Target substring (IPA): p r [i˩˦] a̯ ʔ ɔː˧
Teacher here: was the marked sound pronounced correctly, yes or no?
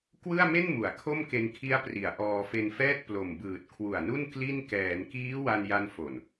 yes